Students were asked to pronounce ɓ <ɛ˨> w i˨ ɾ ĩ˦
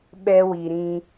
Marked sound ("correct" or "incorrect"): incorrect